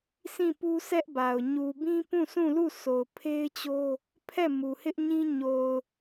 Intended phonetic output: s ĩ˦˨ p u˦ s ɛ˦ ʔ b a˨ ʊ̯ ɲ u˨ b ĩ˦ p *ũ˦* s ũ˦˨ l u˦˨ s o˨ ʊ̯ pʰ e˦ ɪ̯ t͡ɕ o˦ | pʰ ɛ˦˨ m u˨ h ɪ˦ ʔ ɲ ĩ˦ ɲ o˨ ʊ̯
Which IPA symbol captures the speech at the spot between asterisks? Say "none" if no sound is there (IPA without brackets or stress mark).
ũ˦˨